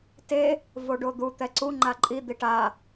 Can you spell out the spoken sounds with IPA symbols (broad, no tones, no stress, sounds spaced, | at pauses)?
t e | v o ɖ o d̪ u t̪ ɛ ǀ u ŋ͡ǃ a ǃʼ i d̪ i ʈ a